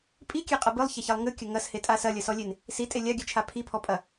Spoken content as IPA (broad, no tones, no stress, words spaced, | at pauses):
pʼikʲeqʼɐ bɨlˠçaçɛlˠ ŋɨkʲɐ ŋɐshetʼa sɐlʲɐsɔlʲen | sitʼe lʲaɡʲɨt͡ʃʰa pʰipʰɔpʼɐ